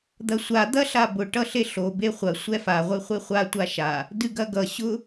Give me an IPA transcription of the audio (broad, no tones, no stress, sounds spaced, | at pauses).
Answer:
d̪ ɐ sʷ a d̪ ɐ ɬ a b ʊ ʈ ʌ ɬ e ɬ o b e χʷ ɐ sʷ ɛ f a ʁʷ ɨ χʷ e χʷ a tʷ a ʃ a | d ɨ ɡ ɐ ɡ ʌ ɕ ʊ